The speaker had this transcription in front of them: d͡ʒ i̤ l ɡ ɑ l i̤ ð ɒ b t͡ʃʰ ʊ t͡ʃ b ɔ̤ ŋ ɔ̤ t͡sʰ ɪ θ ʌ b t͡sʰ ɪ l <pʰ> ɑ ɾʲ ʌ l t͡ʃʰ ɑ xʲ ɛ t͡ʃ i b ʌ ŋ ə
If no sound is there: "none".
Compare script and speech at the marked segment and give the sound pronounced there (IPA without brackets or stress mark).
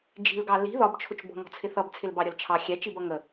b